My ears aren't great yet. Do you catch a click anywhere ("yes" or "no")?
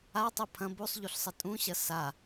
no